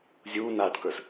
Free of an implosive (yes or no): yes